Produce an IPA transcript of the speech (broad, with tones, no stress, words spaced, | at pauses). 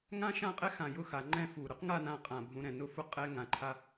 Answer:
ŋã˥ʃã˥˧qʼɛ˥ xã˧˩jʊ˥ xa˩˧ŋ͡ǃɛ̃˥˧fu˧˩ ɾʊ˥qŋa˥˧nã˧ qʼã˧˩ bʱũ˧ɾɛ̃˧˩nʊ˥˧fʊ˥ qʼɛ˥ŋã˧˩ǃʰa˥